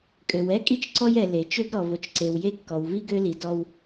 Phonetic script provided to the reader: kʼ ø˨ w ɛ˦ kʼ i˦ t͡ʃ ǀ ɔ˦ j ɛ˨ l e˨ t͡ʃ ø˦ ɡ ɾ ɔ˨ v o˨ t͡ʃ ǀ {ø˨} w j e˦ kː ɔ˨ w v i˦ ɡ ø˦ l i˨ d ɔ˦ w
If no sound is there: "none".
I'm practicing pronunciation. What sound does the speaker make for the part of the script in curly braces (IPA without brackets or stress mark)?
e˨